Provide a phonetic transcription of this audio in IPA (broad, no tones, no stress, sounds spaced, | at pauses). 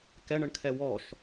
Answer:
k ɛ ɳ ə ɳ kʰ ɛ w ɔ ʃ